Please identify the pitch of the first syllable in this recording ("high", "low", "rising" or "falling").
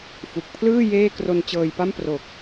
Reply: low